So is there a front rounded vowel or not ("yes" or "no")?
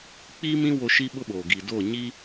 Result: no